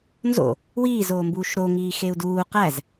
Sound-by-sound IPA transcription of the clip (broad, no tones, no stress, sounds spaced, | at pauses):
n z o̰ | w iː z oː m b uː ʃ ɾ o ŋ iː x e u̯ d uː q æ z